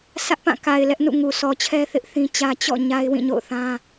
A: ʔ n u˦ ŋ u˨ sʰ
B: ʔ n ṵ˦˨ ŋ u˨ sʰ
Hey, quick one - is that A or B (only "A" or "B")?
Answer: B